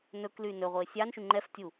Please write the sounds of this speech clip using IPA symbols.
n ɵ k l y n ɵ ʁʷ e sʲ ɑ n ʃ y ŋ͡ǃ ɛ f tʲ u

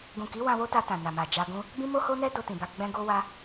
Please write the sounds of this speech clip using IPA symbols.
ɡ ũ˨ k i˨˦ w ã˧ w o˦ t a˧ t ã˨ n a˨ m a˨ d͡ʒ a˧ ɡ ũ˦ | b ĩ˦ m o˦ h o˦ n ɛ˦ d o˧ t ĩ˨ b a˧ ɡ͡b ɛ̃˧ ɡ o˦ w a˦

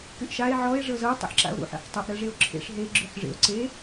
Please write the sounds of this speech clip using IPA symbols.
k y ʔ ʃ a e̯ ʕ ɔ e̯ ʐ ɤ z ɤ tˤ o̰ ħ ǁ a̰ o̯ ɾ ṵ ħ ḛ ħ tˤ u ʔ ɾ ɤ ʐ e o̯ ǁʰ ḛ ʂ ɦ e ɡ͡ǁ y ħ ʐ ḛ o̯ ǀ e

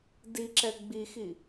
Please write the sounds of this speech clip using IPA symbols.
d i ǁ ɛ ɡ͡b i x i

